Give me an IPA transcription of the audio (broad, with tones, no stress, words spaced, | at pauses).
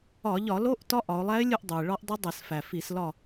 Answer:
ɒ˧˩˧ʎɒ˧˩˧ lo˧˥ʔ tɒ˧˥ʔɒ˩˧ʊ̯lˠæ˧˥ɪ̯lʲu˦˨ʔ dˤu˩ɪ̯ ɭɒ˧˥ʔdˤu˧˥dˤe˧˩˧sfæ˩ fi˧˩˧slɒ˦˨